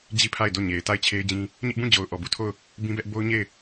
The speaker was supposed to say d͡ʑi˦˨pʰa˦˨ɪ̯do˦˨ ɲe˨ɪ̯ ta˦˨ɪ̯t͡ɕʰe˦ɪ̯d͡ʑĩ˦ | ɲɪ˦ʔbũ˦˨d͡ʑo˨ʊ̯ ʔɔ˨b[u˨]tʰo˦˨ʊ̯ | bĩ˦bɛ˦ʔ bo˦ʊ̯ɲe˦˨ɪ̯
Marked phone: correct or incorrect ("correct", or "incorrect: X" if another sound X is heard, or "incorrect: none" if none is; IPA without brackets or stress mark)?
incorrect: u˦˨